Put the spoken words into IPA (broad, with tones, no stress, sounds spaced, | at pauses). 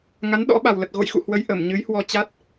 ŋ a˨˦ n ɗ ɔ̰˧˥ ɓ a˨˩ w l ə˨˩ t̚ ɣ o̰˧˨ j x ṵ˧˨ h w ə˨˦ j ʔ ə˧˩ m ɲ ɨ˨˦ j h w ɔ˧ t͡ɕ a˦˥ t̚